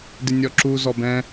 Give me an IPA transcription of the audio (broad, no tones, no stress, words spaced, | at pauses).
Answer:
dɪnʲɔǁu zɔbɛ̃